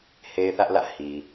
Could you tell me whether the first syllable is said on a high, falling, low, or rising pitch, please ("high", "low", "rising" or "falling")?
high